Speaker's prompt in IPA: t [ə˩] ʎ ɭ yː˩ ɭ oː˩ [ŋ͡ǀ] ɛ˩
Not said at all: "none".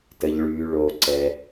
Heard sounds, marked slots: ə˩, ǀ

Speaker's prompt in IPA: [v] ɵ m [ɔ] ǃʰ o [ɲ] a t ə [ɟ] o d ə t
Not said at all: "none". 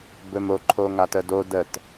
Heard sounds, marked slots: b, o, ŋ, d

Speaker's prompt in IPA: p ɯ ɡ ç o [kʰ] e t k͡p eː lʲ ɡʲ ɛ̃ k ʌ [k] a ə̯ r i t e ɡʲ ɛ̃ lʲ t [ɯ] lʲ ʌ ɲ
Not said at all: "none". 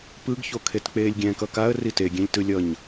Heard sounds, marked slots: kʰ, k, ɯ

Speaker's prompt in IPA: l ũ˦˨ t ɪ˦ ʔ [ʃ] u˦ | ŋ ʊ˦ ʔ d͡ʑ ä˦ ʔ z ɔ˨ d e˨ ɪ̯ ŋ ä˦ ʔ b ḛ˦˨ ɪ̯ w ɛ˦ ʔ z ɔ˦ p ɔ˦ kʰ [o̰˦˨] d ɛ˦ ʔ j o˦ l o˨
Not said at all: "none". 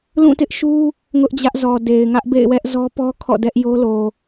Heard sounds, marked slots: ʃ, ɔ̰˦˨

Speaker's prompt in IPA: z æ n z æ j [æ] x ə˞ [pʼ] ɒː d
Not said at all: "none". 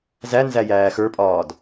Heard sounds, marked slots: æː, pʼ

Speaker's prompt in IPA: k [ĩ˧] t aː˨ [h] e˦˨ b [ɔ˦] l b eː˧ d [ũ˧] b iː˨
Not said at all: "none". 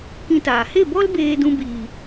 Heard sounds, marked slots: ĩ˧, h, ɔ˦, ũ˧

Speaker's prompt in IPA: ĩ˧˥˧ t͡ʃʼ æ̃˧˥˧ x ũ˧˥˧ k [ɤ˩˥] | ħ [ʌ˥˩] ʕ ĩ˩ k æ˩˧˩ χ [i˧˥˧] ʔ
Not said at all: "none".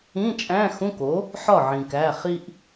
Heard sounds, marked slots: o˩˥, ɒ˥˩, i˧

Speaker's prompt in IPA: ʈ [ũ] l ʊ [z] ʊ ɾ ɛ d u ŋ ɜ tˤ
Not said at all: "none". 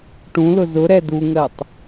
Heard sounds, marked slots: ũ, z

